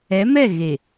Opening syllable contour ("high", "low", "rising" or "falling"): rising